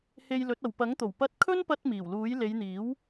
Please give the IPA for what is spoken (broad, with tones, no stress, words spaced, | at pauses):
he˧j lɵ˨˥t̚ɐ˨w pɐ˨˥ŋt̪o˨˩w pɐ˥t̚ kʰɵ˥npɐ˧t̚ miː˨˩wluː˨˥j le˨˧jn̪iː˨˥w